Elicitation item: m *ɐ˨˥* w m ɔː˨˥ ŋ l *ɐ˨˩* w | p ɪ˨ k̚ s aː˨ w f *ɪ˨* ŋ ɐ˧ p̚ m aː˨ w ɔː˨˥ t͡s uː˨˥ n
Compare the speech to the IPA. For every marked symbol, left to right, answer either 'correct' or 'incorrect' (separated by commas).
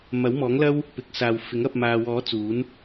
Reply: correct, incorrect, incorrect